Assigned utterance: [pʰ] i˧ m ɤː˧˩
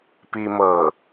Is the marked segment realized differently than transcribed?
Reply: yes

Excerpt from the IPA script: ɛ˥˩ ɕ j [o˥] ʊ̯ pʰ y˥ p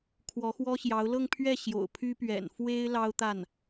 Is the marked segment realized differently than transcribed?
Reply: yes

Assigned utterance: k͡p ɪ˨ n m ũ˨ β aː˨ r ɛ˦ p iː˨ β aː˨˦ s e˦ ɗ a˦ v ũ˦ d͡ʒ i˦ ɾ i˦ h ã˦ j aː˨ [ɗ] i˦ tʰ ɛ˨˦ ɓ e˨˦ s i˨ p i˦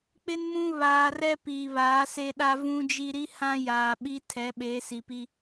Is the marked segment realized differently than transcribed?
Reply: yes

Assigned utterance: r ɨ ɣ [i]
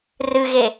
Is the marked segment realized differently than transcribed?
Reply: yes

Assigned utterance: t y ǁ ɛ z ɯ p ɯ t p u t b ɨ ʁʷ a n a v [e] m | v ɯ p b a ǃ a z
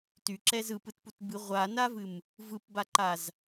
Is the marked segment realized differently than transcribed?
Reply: yes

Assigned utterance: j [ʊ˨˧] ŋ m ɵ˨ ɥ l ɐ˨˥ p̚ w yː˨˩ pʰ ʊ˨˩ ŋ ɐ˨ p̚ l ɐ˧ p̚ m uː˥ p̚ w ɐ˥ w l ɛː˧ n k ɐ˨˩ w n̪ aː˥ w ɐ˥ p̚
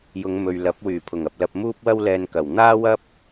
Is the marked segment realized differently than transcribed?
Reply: no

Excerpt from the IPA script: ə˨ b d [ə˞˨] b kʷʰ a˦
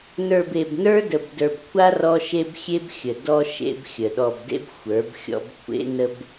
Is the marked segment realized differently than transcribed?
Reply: no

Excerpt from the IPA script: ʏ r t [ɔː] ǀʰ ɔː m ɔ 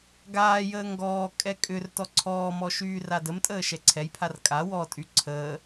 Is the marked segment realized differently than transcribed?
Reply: yes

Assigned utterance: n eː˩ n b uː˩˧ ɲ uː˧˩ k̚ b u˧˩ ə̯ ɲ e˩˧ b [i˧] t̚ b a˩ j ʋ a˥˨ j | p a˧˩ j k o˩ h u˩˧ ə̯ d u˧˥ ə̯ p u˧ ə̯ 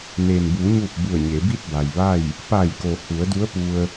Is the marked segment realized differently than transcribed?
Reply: yes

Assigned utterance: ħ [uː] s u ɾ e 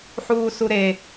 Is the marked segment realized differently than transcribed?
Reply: no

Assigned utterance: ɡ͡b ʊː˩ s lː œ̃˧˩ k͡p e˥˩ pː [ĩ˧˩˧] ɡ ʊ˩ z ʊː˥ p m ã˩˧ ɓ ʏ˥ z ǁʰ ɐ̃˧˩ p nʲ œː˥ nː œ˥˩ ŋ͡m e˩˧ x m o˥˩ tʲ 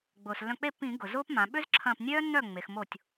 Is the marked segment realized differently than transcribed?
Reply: no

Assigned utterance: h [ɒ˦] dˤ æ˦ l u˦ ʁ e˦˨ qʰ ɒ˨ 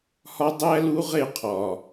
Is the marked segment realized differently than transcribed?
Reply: no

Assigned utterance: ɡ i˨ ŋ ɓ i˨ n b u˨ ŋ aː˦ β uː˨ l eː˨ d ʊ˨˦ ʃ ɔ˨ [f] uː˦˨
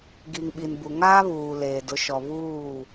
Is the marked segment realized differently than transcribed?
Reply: yes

